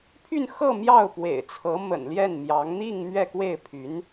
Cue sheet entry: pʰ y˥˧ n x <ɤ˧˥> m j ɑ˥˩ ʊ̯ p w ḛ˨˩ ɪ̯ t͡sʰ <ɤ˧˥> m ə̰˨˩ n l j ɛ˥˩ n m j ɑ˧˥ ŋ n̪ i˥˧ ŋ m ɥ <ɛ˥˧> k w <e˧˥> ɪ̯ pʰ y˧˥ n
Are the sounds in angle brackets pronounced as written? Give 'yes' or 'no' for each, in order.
no, yes, yes, no

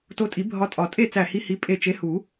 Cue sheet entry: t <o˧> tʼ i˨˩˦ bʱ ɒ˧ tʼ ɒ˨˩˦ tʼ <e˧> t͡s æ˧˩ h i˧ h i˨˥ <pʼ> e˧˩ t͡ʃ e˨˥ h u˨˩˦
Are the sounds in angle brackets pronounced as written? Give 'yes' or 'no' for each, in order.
yes, no, yes

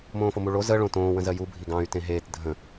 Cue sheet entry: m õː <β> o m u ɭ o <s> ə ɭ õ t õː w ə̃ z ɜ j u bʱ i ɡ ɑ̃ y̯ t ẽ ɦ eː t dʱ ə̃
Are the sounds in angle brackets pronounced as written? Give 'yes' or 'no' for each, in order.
no, no

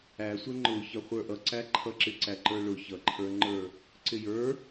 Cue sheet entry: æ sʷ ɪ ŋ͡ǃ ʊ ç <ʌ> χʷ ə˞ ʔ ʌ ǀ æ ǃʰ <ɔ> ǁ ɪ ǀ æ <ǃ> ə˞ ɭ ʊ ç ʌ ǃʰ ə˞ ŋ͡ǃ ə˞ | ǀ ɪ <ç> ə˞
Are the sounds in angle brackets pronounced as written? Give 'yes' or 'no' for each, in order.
yes, no, yes, no

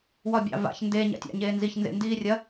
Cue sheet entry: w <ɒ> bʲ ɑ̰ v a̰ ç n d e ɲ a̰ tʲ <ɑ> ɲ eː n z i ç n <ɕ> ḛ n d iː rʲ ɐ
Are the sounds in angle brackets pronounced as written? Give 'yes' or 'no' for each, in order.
yes, no, no

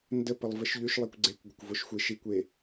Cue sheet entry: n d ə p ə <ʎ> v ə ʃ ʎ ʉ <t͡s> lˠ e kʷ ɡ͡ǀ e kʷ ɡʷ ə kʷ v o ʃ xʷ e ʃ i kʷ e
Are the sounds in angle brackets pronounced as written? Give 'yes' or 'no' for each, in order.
no, no

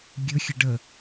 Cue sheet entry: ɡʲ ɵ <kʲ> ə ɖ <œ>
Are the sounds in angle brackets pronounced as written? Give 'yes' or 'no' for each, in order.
no, no

